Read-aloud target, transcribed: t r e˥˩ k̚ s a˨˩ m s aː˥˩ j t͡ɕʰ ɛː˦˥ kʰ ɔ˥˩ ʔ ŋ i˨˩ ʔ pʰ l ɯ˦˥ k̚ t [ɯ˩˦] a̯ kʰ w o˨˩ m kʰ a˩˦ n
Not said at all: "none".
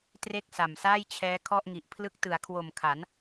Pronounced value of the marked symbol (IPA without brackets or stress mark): ɯ˩˦